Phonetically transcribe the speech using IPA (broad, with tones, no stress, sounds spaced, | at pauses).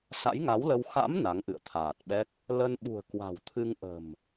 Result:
s a̰˧˥ j ŋ a˨˦ w l ə˧ w x a̰˧˥ m n a˨˦ ŋ ʔ ɨ̰˧˨ ə̯ t̪ʰ aː˨˩ t̚ ɓ ɛ˦˥ k̚ | l ə˧ n ɓ ṳ˨˩ ə̯ k w a̤˨˩ w t̪ʰ ɨ˧ ŋ ʔ ə̤˨˩ m